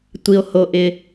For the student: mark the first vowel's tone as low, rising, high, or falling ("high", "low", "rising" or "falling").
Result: low